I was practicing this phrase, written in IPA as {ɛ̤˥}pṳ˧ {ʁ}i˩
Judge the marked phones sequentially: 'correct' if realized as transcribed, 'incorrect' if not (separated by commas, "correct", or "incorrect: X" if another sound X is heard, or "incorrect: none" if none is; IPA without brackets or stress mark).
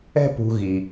correct, incorrect: ɣ